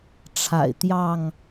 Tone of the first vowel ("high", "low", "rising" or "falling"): low